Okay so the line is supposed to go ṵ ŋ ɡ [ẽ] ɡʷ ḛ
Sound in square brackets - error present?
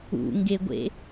yes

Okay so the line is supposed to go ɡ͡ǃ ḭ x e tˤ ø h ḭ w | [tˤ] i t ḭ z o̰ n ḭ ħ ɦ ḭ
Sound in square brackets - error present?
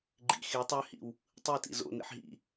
no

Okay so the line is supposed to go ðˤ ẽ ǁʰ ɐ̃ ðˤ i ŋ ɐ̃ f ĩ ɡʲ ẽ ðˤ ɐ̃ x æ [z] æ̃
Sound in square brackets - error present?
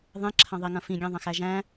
yes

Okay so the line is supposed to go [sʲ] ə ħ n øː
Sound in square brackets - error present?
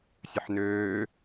no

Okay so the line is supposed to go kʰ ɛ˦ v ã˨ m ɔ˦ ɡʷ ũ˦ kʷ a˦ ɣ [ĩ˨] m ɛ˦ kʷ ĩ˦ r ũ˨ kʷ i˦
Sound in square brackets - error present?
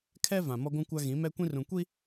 yes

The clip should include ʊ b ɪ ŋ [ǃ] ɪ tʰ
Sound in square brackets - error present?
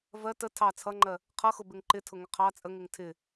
no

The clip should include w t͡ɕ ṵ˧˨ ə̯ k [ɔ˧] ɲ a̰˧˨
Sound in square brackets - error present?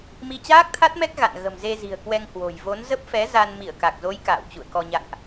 no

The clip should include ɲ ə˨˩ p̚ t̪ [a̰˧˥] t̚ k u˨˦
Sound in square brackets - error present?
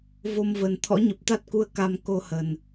yes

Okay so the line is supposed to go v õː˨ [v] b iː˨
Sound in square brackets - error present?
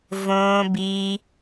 yes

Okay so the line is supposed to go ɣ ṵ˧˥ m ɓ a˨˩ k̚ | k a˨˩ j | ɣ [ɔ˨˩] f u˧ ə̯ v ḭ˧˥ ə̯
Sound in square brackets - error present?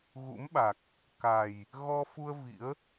yes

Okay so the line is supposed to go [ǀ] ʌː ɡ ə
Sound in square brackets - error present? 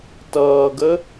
yes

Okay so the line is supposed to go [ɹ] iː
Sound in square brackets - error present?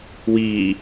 yes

